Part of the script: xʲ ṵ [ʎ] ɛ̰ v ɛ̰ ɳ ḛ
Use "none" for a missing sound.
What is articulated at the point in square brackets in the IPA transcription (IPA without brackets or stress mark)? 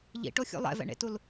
lˠ